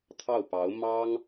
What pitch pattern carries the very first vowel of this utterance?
falling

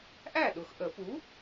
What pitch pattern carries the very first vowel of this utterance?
falling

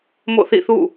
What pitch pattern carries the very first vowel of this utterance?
falling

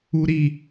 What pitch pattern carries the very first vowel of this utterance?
high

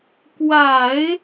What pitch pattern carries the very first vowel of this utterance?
low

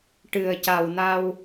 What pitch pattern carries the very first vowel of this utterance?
low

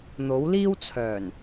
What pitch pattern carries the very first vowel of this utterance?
rising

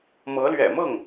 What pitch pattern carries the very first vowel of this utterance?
rising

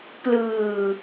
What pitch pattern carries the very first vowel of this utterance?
low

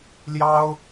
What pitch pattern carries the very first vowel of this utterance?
high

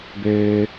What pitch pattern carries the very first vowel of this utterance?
low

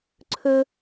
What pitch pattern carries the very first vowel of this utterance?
high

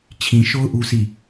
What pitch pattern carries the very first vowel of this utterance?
low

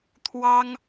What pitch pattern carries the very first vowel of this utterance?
high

